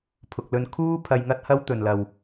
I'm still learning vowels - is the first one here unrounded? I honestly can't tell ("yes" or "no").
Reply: no